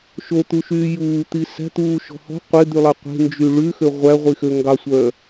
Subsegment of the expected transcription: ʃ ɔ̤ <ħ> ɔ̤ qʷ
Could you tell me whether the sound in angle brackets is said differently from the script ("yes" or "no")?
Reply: yes